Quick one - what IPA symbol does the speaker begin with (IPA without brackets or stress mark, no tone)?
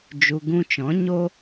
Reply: d͡ʒ